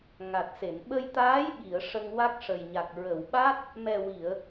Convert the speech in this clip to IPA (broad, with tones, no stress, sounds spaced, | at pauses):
ŋ a˨˩ t̚ s e˨˩˨ n ɓ ə˧ j t̪ aː˧˥ j ɓ i˨˩˨ ə̯ ʂ ə˧ ŋ w a˦˥ k̚ ʂ ə˨˩ j ɲ a˨˩ k̚ ɹ ə˨˩˨ w ɓ a˦˥ t̚ | m ɛ˨˩ w i˨˩˨ ə̯